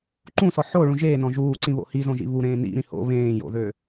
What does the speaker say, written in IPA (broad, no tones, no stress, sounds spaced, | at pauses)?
ǃ ũ s ɔ ħ o ɭ ũ ʒ eː n ɔ̃ ʒ uː ǀ ĩ β o̰ h i z õ ʒ ḭ β u ɾ ẽː n ḭ ɾ ĩ h o̰ β ẽː j o̰ ð ø